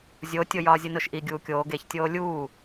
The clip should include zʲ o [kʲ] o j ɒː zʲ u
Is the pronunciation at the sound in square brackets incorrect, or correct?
incorrect